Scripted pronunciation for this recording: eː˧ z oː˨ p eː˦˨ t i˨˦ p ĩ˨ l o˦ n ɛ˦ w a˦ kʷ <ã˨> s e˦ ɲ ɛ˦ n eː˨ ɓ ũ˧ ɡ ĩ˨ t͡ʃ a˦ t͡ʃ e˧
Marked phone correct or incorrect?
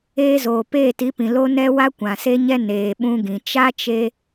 correct